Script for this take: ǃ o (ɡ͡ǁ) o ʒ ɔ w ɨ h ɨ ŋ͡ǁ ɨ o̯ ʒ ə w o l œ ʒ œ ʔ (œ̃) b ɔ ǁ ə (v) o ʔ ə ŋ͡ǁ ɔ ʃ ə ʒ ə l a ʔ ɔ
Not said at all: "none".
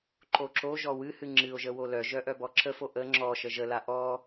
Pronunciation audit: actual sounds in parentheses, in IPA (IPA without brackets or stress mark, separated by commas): ǁ, œ, f